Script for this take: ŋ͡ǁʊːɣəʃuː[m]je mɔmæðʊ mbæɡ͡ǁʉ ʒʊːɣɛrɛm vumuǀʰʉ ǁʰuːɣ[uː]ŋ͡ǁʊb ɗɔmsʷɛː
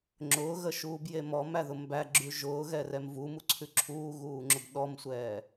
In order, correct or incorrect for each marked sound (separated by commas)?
incorrect, correct